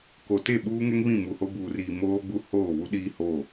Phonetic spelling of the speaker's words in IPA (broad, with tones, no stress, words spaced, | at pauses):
ko˨ te˦˨ɓuː˦ŋɛ˦ŋ βĩ˦˨mu˨ho˦ buː˨riː˨ moː˦ɡ͡bu˦ hoː˦˨βu˦ɗiː˦ho˦˨